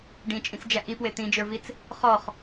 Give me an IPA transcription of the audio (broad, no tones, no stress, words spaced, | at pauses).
ɖĩt͡ʃʼĩt͡sd͡ʒæ ʔipwe t̪ĩd͡ʒə˞vit͡s | χɔχ